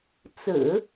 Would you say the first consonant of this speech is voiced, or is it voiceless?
voiceless